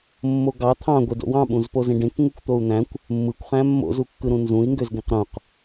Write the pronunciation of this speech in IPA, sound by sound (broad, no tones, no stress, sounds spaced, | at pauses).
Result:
mː o ɡ ɑ t̪ʰ ɑ̃ ɡʷ e d o̰ w ɑ̃ ɓ ũ z p o z ẽ ɖ ẽ k ŋ u kʷ t̪ o u̯ n̪ æ̃ kʷ | mː ɯ kʷ χ æ̃ mː o̰ z u kː ɯ ɾ ũ n z ũ i̯ ŋ ɡ ø z ɡ ẽ q ɾ ũ q